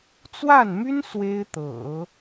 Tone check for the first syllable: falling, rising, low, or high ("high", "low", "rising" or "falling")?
falling